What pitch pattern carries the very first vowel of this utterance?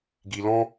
low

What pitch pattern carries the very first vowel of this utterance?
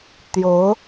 rising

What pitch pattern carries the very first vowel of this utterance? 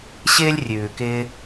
high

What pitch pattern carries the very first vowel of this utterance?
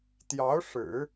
rising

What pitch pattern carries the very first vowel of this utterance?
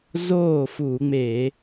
falling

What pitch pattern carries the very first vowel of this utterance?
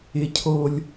high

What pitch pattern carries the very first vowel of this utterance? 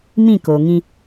falling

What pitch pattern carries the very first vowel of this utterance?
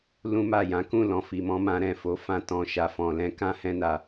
high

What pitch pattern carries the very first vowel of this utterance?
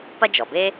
high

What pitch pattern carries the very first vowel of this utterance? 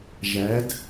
rising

